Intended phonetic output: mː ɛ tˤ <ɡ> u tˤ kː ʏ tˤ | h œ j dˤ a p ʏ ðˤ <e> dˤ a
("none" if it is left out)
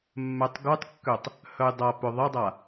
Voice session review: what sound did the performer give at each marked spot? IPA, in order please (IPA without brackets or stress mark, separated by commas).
ɡ, ɛ